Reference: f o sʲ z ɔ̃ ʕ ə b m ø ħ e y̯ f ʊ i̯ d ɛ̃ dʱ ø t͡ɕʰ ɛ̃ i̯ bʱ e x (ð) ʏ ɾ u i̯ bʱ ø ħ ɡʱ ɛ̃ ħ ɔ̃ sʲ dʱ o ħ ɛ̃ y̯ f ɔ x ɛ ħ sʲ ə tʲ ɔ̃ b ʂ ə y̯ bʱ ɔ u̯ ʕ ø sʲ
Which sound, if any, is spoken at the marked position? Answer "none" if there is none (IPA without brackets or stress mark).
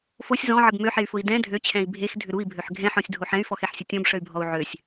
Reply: dʱ